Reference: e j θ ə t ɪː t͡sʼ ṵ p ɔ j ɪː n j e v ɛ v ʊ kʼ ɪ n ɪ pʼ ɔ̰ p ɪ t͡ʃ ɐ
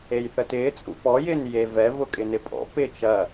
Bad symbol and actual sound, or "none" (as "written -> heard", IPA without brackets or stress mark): none